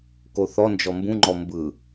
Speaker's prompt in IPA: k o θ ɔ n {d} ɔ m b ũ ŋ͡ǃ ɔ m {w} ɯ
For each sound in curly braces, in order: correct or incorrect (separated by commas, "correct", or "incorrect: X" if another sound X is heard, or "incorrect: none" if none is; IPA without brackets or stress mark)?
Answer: incorrect: d͡ʒ, incorrect: b